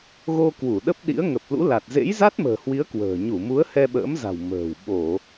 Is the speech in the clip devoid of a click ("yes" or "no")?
yes